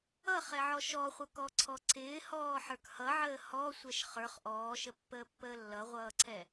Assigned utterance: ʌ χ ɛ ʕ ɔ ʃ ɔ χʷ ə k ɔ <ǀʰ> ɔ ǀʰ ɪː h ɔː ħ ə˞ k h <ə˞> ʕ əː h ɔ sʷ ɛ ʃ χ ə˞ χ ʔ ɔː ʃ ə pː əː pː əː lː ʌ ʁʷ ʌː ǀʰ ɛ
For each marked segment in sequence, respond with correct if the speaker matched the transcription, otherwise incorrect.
correct, incorrect: ʌ

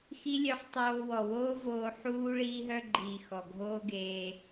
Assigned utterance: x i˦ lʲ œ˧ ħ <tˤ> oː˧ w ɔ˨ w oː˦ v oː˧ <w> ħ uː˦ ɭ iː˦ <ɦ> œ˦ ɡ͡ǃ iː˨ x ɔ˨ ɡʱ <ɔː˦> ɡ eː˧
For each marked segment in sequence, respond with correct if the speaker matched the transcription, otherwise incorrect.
correct, incorrect: none, correct, incorrect: oː˦

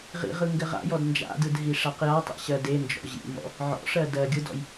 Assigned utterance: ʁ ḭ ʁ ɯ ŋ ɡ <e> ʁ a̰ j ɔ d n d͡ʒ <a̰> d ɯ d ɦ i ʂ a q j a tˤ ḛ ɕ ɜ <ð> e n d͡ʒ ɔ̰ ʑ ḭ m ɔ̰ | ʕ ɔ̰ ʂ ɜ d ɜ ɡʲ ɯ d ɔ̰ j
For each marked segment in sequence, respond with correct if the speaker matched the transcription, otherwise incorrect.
incorrect: ɘ, correct, incorrect: d

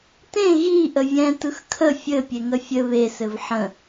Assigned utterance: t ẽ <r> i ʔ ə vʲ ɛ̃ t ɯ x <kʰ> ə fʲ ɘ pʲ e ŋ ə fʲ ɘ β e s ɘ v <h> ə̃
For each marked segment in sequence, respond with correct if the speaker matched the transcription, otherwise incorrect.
incorrect: ɣ, correct, incorrect: ħ

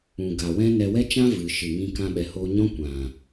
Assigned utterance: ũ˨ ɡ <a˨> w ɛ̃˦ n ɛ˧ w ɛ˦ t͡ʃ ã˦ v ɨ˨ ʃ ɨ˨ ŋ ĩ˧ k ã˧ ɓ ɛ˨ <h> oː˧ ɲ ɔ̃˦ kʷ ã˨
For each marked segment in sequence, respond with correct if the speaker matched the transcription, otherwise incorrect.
correct, correct

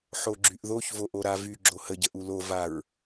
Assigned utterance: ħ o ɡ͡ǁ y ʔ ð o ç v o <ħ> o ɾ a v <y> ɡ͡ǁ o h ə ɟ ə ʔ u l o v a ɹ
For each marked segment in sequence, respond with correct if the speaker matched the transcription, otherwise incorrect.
incorrect: ʔ, correct

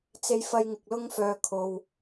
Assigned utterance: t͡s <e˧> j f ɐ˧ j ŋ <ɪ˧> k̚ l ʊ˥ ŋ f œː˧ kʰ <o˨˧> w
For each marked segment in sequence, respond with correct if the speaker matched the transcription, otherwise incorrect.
correct, incorrect: ɪ˨, incorrect: o˨

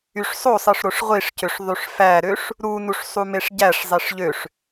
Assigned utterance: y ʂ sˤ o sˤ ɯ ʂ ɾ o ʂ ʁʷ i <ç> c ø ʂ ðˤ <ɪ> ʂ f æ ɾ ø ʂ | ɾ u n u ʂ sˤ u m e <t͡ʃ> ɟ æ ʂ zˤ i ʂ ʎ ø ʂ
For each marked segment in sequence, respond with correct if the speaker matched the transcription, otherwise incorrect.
incorrect: ʂ, incorrect: y, incorrect: ʂ

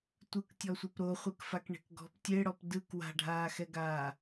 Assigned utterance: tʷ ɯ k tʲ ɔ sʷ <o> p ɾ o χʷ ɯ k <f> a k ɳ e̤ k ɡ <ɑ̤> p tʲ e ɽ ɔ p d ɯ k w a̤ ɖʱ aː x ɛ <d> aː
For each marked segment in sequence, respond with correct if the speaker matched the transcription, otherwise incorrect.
incorrect: ɤ, correct, incorrect: ɔ̤, incorrect: ɡ

